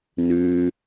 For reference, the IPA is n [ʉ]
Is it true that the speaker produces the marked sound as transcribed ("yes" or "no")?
yes